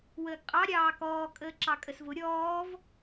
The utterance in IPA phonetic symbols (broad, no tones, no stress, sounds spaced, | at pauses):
w əː ɡ qʼ ɑ ɾʲ ɑː k ɔː kʼ əː ǁ ɑ kʼ ə s v ʊ ɾʲ ɔː v